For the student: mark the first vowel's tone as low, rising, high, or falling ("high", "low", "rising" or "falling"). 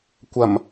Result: low